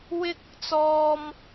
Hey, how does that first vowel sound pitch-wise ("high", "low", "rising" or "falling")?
high